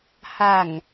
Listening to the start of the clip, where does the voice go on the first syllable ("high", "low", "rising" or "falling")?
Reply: low